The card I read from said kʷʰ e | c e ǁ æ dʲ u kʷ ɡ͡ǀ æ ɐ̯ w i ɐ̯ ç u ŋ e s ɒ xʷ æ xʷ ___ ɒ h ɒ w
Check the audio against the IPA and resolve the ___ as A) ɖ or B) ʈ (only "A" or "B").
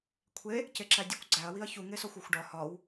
A